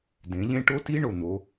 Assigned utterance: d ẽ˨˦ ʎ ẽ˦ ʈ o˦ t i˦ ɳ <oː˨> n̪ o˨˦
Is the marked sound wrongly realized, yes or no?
yes